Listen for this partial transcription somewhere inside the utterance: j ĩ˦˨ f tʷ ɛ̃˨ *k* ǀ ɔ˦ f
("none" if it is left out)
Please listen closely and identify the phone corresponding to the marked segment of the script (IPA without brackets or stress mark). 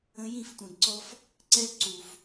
ɡ